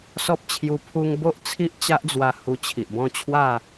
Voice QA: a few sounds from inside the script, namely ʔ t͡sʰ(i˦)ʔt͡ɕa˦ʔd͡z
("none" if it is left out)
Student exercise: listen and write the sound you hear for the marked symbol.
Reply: i˦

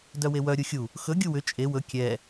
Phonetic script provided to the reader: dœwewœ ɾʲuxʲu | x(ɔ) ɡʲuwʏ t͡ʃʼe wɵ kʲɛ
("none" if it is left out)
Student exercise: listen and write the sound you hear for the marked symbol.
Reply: ɵ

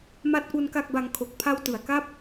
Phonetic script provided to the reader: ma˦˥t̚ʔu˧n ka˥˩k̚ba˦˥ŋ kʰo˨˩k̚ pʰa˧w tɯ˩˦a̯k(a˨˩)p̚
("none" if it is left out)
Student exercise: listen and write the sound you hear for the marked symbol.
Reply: a˥˩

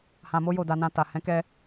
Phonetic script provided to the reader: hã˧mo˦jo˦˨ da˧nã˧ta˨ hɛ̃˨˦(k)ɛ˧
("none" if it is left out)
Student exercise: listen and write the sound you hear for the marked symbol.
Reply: k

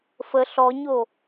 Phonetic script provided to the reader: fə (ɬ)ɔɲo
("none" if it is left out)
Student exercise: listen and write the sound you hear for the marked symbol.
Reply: ɬ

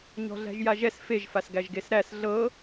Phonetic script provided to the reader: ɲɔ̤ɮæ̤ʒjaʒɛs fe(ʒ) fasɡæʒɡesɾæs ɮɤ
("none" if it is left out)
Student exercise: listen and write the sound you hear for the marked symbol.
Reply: ʒ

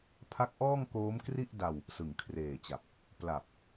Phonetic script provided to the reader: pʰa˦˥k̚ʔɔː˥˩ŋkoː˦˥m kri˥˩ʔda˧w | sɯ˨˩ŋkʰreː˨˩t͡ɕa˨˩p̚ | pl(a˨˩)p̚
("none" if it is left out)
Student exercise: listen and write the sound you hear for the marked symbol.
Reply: a˨˩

